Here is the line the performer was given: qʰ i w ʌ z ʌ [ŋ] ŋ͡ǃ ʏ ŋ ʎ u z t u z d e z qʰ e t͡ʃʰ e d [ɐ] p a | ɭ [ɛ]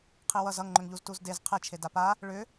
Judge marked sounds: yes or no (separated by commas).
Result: yes, no, no